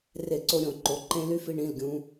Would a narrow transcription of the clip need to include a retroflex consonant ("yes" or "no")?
yes